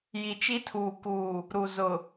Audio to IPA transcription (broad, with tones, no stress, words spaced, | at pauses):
ji˨t͡ʃi˦tʰuː˨kuː˨ | ɾu˨zʊ˨